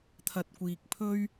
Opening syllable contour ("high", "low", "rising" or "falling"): low